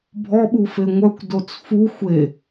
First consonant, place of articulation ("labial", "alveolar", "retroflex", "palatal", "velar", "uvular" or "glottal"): labial